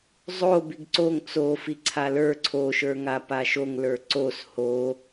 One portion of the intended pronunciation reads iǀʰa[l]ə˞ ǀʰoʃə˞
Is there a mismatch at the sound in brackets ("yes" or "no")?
no